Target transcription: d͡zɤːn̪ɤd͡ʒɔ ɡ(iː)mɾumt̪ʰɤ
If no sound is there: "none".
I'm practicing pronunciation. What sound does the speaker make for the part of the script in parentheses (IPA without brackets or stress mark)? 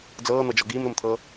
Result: iː